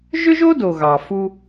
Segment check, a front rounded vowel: present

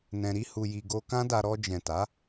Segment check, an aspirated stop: absent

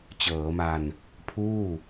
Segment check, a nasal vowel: absent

